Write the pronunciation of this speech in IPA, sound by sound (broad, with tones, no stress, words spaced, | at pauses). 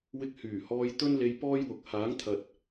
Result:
wɪ˧k̚hyː˨˩hɔː˧j t̪ɵ˥n le˧j pɔː˥jwʊ˨˥k̚ haː˨˥ŋt̪ʰɐ˨t̚